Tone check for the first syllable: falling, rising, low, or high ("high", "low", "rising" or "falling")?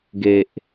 low